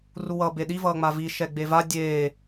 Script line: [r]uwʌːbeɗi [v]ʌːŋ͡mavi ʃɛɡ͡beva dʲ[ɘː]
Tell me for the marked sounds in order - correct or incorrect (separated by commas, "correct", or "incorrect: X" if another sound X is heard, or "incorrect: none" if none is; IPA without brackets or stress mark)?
correct, correct, incorrect: eː